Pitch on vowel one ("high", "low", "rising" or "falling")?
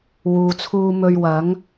low